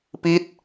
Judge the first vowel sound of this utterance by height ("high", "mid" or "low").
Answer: high